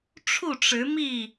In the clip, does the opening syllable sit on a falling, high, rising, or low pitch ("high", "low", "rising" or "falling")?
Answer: falling